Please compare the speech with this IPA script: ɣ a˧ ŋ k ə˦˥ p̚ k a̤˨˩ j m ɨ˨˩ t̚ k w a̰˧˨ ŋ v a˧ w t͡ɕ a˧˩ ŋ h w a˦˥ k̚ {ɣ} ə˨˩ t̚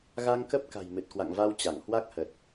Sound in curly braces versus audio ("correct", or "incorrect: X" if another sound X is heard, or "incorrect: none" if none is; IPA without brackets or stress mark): incorrect: h